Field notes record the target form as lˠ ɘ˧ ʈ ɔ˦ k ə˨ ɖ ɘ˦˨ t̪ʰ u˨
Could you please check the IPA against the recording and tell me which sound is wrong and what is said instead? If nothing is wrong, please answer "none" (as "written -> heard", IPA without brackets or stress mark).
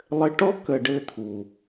none